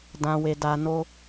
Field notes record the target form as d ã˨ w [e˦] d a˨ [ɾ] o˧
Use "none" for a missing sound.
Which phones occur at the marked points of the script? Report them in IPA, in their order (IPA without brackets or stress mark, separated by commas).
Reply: e˨, n